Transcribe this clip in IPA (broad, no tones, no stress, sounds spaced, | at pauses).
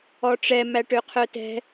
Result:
ɔ ʈ͡ʂ ɛ m æ ʈ ø qʰ œ t ɛ̤